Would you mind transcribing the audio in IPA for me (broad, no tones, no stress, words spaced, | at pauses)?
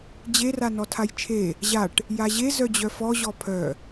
d͡ʑer anɔtʰajt͡ʃʰe | ʑaʈ | jaʑe zœd͡ʑœfɔ ʑɔpʰœ